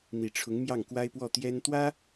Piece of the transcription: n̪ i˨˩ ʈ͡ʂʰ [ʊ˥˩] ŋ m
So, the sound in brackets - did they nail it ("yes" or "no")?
no